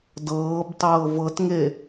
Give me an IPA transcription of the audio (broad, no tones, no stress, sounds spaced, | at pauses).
d ɤː b tˤ ɤː v ɤ t ŋ e